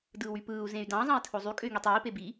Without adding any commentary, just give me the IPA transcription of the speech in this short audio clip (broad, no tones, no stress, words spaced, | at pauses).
dɯːwypɯːu̯ zẽy̯dɑ̃ zˤɑ̃i̯tʰozˤy kʼøy̯ŋitˤiː pebi